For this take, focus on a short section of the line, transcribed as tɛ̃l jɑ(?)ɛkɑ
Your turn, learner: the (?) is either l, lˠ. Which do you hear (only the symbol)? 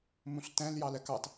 l